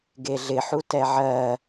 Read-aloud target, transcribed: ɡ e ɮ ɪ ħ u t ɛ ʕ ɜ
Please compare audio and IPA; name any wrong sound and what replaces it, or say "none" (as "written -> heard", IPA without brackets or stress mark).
none